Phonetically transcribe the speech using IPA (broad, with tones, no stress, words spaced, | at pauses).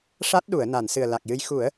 ʂa˦˥t̚ɗu˨˩˨ə̯ na˨˩˨nsɨ˨˩ə̯la˨˩k̚jɨ˧˥j xu˨˩˦ə̯